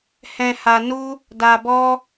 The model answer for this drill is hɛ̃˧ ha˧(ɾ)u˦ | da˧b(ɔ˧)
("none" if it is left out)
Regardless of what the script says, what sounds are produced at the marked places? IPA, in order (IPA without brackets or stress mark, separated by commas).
n, ɔ˦